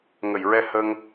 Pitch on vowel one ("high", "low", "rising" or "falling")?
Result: low